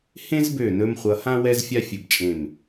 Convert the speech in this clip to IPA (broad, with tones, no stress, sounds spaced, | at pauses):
h ẽ˥ z b ø˧˩ n ɵ˧ m χʷ ʌ˧ h ã˥ w ɛ˥ z fʲ a˥ fʲ ɵ˧˩ b t͡ʃʼ ẽ˧˩ m